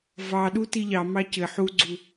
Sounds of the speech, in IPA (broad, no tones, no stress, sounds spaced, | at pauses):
v ɑ ɗ u t i ʎ ɑ m ɑ c ɘ ħ u ɡ͡ǀ u